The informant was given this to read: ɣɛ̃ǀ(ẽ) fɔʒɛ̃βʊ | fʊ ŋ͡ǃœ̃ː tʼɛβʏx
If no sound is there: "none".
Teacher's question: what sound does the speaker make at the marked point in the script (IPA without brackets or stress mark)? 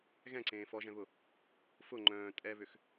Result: ẽː